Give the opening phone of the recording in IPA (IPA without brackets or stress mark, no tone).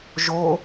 ʒ